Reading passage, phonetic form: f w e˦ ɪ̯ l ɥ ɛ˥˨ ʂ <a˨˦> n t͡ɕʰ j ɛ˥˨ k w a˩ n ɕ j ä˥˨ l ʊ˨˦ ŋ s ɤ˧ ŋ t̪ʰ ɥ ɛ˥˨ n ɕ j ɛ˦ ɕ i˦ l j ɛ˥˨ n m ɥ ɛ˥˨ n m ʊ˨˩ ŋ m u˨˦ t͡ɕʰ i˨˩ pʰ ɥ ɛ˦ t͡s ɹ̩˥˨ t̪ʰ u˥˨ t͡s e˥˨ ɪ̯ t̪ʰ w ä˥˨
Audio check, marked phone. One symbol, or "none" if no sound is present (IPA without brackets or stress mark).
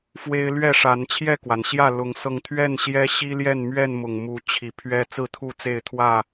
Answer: a˨˦